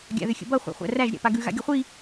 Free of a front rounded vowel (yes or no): no